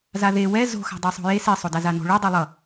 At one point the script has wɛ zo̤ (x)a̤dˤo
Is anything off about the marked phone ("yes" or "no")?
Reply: no